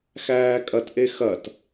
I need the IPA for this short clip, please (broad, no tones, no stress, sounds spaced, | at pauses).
x æː kʼ ɐ t ʔ e x ɐ t